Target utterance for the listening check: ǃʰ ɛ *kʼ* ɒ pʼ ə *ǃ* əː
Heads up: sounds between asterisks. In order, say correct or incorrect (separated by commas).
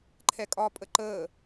correct, correct